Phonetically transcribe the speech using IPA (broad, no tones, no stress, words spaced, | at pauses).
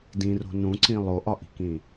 dĩro̤ nũǀĩ lˠoʔɒʔi̤kĩ